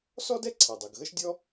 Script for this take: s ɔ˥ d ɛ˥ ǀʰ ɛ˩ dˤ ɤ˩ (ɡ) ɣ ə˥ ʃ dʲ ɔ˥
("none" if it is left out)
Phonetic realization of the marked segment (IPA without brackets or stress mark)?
ɡ